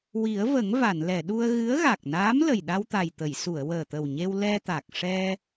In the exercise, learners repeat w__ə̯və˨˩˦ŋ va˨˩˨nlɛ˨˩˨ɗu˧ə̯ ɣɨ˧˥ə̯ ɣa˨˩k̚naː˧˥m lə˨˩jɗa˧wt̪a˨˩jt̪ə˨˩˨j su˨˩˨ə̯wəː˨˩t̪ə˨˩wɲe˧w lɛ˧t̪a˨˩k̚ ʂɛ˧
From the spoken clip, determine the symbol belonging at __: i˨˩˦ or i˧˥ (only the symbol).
i˨˩˦